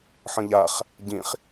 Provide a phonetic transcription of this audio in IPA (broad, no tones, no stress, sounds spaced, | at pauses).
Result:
ħ ə̃ ʎ a χ | ɟ ĩ χ